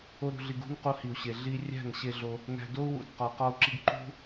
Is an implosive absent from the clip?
yes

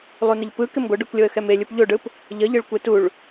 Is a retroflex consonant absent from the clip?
no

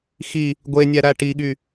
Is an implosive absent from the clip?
no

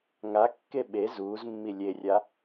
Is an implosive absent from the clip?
no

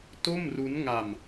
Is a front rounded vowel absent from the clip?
yes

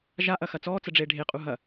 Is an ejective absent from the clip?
no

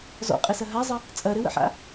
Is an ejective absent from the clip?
no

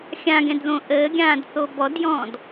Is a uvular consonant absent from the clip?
yes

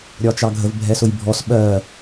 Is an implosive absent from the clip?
no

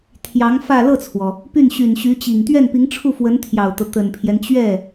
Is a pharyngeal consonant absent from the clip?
yes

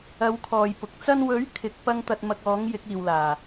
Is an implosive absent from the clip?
yes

